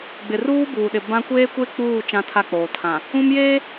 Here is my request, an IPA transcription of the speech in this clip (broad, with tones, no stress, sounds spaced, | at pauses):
ɡ͡b ɪ˨ r uː˦ b uː˨ ɗ ɪ˨ b ã˦ kʷ eː˦ kʷ e˦ k͡p uː˦˨ t͡ʃ ã˦ tʰ a˦ k͡p oː˨ tʰ ã˨ | ũ˦ m j eː˦